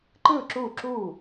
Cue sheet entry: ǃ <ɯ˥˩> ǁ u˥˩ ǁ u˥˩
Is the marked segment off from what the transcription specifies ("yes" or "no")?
no